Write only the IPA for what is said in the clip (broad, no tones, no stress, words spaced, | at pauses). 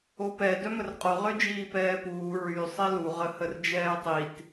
opɛ dœmərqʼo ʁød͡ʒiːpɛːpuː ɹy sˤelu ʁəhərd͡ʒɛːtˤit